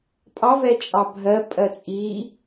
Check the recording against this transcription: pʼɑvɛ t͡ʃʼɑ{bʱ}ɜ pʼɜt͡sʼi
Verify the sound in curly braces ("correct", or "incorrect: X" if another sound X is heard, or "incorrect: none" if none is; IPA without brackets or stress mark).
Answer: correct